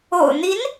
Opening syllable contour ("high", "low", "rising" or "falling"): low